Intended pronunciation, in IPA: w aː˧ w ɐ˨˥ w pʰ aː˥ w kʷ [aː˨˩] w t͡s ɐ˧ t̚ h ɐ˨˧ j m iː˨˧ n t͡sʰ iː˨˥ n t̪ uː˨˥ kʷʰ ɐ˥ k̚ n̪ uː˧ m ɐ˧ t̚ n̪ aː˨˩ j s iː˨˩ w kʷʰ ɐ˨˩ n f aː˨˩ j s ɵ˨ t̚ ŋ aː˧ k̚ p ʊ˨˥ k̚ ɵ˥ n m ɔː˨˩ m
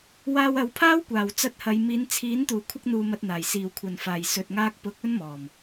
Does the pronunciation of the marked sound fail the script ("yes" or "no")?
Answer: no